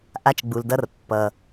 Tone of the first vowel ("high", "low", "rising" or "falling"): high